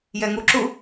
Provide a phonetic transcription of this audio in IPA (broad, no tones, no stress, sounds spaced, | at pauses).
j ɛ ŋ u ǁ u